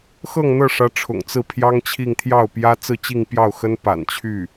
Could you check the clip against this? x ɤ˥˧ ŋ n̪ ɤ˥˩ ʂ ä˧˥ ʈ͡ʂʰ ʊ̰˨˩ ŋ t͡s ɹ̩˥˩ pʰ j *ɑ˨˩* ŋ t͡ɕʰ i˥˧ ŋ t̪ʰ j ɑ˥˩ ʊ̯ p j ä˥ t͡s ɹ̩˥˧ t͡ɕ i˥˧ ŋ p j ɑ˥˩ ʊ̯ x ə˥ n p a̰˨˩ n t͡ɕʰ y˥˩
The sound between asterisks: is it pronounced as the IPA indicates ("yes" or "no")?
no